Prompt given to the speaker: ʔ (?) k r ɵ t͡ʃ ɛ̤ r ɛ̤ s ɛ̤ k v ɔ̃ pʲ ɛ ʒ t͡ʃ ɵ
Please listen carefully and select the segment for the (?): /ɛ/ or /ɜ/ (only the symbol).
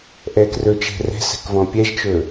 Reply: ɛ